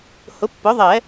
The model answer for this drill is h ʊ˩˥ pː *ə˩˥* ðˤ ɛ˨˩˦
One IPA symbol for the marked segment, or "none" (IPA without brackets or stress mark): ʊ˩˥